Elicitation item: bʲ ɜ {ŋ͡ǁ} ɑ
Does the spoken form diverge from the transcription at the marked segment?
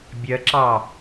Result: yes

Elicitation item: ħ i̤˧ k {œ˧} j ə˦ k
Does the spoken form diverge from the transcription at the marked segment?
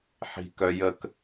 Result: no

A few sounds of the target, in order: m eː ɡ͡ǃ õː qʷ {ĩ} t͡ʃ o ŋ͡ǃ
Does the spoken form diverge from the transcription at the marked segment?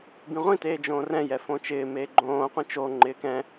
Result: no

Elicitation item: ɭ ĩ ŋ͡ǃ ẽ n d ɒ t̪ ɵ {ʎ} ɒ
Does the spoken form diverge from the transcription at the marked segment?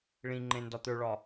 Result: yes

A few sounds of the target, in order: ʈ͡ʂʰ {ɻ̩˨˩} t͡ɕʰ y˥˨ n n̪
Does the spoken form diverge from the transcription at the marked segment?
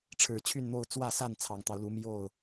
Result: no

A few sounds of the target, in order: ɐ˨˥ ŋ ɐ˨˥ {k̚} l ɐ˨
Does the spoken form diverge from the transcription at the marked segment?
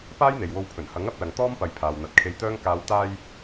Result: yes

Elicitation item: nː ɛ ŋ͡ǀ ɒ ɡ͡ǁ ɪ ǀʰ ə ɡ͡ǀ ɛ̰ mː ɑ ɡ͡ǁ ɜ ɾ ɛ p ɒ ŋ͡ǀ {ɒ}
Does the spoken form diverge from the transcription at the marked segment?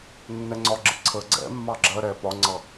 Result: yes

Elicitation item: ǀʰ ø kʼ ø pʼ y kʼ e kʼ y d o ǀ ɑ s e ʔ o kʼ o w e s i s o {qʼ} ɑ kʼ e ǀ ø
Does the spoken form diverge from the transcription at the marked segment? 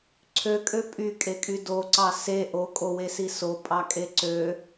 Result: yes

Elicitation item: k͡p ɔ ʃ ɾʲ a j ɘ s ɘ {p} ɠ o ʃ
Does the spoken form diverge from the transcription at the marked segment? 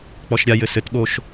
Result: yes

